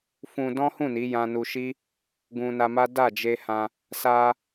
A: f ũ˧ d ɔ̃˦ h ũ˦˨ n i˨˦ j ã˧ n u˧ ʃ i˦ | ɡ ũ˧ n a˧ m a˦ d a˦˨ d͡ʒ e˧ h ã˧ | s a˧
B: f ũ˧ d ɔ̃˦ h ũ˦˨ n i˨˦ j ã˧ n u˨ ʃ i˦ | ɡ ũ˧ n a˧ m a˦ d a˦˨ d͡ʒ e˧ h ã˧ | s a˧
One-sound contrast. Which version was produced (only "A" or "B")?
A